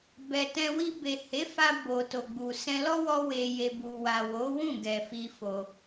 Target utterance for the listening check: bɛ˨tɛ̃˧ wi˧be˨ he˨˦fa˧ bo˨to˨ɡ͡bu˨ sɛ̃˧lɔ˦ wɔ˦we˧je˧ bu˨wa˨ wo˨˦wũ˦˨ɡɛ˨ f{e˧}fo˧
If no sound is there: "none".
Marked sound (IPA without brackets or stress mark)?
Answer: i˧